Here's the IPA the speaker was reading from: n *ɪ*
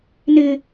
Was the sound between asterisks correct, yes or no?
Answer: yes